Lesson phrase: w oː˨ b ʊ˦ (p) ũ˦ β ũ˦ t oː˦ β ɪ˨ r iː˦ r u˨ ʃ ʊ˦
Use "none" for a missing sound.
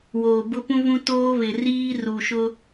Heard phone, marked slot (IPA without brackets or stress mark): p